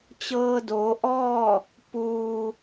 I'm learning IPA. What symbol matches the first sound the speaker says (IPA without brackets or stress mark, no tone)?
t͡ɕ